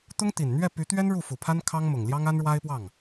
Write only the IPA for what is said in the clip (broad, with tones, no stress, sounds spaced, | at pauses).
t̪ ʊ˥ ŋ t̪ i˨˩ n n̪ ɥ ɛ˥˩ p y˧˥ t̪ ɥ ɛ˥ n ɻ u˥˩ f u˨˩ pʰ a˥ n kʰ ɑ˥ ŋ m ʊ˨˩ ŋ l j ɑ˥ ŋ a˥ n ɻ w a˥ ɪ̯ p w ɑ˥˩ ŋ